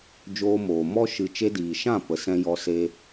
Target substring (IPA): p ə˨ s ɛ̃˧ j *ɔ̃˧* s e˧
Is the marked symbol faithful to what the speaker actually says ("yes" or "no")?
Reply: no